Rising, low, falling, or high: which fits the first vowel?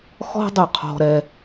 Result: high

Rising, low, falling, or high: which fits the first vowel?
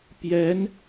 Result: rising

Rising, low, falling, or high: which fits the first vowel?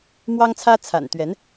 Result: high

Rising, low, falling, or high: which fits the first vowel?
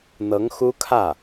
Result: rising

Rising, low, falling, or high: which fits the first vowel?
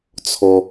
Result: low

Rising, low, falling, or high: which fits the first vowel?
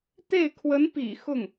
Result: falling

